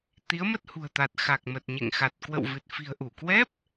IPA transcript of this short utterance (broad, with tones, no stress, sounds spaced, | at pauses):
t̪ i˨˦ ə̯ m ə˦˥ t̚ h ṳ˨˩ ə̯ t̪ a˨˩ t̚ x a˨˩ k̚ m ə˨˩ t̚ ɲ ḛ˧˨ ŋ x a˨˩ t̚ k w ə̰˧˨ w v ɨ˨˩ t̚ f i̤˨˩ ə̯ ʔ u˧˩ k w ɛ˦˥ p̚